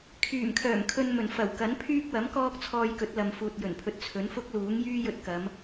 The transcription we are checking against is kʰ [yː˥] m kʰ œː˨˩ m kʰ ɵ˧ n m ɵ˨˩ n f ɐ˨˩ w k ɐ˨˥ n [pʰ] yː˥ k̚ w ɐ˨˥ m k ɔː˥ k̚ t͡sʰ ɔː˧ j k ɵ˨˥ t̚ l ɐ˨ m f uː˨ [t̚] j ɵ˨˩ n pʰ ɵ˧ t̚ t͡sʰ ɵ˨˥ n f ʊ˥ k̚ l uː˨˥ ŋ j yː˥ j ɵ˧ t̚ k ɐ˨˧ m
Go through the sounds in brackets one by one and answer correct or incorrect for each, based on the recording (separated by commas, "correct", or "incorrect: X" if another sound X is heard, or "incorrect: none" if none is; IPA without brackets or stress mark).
incorrect: yː˨˩, correct, correct